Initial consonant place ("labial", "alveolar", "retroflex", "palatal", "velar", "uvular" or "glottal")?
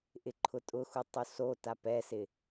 glottal